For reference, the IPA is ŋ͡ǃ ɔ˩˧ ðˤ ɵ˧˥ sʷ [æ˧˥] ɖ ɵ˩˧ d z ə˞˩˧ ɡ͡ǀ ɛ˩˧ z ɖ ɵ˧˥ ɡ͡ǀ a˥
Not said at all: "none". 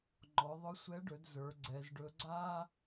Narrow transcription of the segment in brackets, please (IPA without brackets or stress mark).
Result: ɛ˧˥